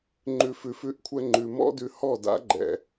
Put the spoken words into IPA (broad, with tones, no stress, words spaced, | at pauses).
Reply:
ŋ͡ǃʉ˨fʉ˨fʉ˨˦ʔkʷʰɛ˧ ŋ͡ǃʉ˨mɔ̰˦dʉ˧ hɔ˦˨da̰˨˦ɡ͡ǃɛ̰˨